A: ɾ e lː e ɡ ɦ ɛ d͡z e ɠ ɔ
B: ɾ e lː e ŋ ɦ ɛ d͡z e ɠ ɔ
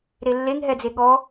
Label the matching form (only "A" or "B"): B